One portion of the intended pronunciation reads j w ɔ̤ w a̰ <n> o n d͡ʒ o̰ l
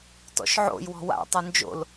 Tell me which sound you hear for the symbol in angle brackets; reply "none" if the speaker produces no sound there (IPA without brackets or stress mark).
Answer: tˤ